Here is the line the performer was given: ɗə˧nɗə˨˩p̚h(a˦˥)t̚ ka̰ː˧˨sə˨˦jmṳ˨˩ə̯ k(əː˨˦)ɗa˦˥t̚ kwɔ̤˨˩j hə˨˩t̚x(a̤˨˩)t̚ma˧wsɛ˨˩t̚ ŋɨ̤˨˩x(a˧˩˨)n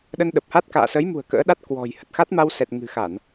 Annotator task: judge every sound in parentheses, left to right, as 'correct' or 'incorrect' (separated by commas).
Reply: correct, incorrect, incorrect, correct